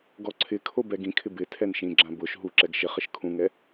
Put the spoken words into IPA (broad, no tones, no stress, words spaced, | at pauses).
ɡɔǀʰɪkʰo bɛɡĩkʰɪ bɪ tʰɛnʃĩɡ͡ǁã bʊʃ ɦuǁɛɡ ʃɪχɪʃ kʰũŋɛ